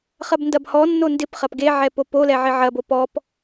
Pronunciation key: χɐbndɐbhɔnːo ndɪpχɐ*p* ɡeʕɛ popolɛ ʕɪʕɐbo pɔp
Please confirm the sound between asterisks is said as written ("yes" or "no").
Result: yes